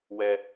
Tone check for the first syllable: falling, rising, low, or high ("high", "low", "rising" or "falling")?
high